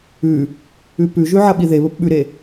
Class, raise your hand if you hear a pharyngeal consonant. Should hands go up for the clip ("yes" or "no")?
yes